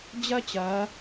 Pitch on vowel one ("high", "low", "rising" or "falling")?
high